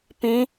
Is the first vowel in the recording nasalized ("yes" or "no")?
yes